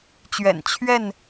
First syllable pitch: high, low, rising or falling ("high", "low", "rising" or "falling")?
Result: low